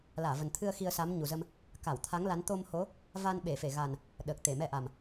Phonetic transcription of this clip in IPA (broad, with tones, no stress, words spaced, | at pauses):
laː˧˩və˨˩nt̪ʰɨ˧ə̯ xi˧ə̯sa˨˦mɲu˨˩zə˧m | ka˧˩wt̪ʰa˨˦ŋ la˨˦n t̪o˧mho˨˦ | va˧n ɓe˧˩fe˧˩ ɣa˨˩n | ɗəː˨˩k̚t̪e˧˩mɛ˧ ʔa˨˩m